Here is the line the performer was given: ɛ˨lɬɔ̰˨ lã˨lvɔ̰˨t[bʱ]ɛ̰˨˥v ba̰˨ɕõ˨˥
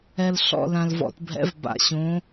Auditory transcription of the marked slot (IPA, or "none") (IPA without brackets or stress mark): bʱ